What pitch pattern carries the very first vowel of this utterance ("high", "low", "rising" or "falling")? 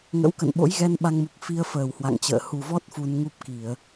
rising